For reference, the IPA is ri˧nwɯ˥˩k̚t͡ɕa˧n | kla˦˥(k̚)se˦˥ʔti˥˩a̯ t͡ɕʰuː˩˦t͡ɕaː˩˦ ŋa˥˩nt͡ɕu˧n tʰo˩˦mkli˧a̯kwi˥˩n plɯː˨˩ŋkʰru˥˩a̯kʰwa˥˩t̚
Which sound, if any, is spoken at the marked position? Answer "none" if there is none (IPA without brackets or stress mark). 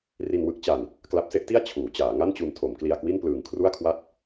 p̚